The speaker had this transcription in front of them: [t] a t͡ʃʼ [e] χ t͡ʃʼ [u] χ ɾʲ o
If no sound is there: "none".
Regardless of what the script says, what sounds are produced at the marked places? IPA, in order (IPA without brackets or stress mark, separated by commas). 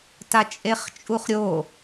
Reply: t, e, u